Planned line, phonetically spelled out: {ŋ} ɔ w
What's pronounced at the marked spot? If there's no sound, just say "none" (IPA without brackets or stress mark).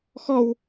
x